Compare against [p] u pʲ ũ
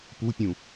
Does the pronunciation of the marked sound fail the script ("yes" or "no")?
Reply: no